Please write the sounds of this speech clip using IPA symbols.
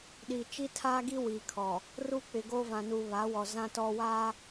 ɗ iː˨ t͡ʃ i˦ tʰ aː˦ ɡ i˦ w iː˨ kʰ ɔ˨ | r uː˦ k͡p ɪ˨ ɡ oː˦ v ã˨ n uː˨ β a˨˦ w ɔ˨ z ã˦ t ɔ˦ w aː˦

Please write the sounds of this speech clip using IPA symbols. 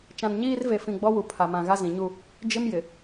t͡ʃ ã˨ n ɲ iː˦ r v e˨ f ĩ˨ ɡ͡b ɔ˦ w u˨ pʰ a˨ m ã˨ ɣ a˦ z ĩ˨ ɲ u˦ | d͡ʒ ɪ˦ m j ɪ˨

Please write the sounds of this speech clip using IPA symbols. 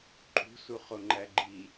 ǃʼ ṳ s u χ o ŋ͡ǃ æ ɡ͡ǃ i

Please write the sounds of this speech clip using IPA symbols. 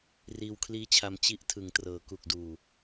r iː˧ w kʰ l iː˦˥ t͡ɕʰ a˧ m t͡ɕ i˦˥ ʔ tʰ ɯ˩˦ ŋ t r ɤː˩˦ k u˨˩ k̚ d uː˨˩

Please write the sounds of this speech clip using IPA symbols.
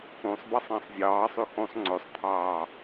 ũ sˤ b ɑ sˤ ɑ̃ sˤ zʲ ɑː sˤ y x ũ sˤ ŋ͡ǀ ø sˤ t̪ʰ ɑː

